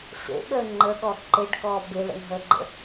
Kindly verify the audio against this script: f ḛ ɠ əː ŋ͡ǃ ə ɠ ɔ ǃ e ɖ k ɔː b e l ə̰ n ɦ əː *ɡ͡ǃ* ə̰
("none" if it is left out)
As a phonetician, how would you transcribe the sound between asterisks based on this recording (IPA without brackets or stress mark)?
ɡ͡ǃ